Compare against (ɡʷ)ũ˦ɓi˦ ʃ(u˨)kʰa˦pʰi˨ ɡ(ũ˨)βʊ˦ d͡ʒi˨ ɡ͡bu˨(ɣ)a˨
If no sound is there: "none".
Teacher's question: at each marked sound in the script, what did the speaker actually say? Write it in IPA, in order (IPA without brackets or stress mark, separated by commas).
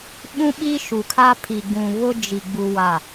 ɓ, u˨, ũ˨, w